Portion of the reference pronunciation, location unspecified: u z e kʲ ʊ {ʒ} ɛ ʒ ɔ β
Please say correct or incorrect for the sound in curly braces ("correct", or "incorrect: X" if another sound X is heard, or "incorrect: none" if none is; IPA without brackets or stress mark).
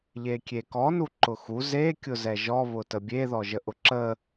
incorrect: z